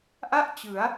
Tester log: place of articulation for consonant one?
glottal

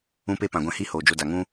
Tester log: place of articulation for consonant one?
labial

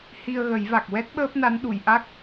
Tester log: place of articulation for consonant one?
glottal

